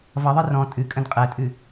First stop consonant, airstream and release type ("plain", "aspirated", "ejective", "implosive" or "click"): ejective